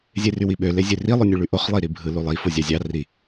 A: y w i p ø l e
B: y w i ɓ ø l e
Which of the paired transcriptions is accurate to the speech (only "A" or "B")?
B